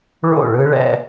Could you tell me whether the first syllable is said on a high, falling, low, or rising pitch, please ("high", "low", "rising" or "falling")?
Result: falling